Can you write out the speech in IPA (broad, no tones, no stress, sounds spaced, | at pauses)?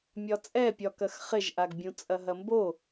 mʲ ɒ t͡sʼ ɛ pʲ ɒ k ɐ x χ ɪ ʒ ʔ a ɡ bʲ ũ t͡sʼ ɐ ɦ ɐ m b o